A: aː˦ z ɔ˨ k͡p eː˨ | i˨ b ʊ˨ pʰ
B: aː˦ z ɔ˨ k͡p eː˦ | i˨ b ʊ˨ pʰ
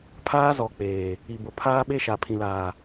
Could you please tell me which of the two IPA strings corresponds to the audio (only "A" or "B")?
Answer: A